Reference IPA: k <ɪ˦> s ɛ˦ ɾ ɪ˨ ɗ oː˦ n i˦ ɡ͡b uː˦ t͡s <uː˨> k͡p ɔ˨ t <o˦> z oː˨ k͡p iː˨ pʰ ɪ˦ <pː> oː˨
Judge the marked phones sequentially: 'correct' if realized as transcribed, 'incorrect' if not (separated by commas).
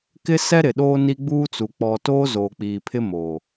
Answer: correct, incorrect, correct, incorrect